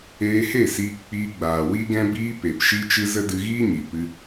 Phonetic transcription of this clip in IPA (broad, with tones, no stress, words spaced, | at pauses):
eː˧he˦˨siː˧kk͡piː˧ ɡ͡baː˨wi˦ɡɛ̃˦ biː˧ pe˨pʃi˦t͡ʃɨ˦ zə˦dɨ˧ɣiː˦ɲi˨ pɨ˧